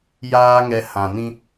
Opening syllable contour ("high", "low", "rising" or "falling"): high